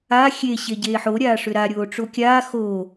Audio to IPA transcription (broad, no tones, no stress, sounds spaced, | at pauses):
a xʲ e ɕ e ɟ eː ħ o ɾʲ aː ʂ ʏ ɾ a ɾʲ oː ʈ͡ʂ o kʲ aː x o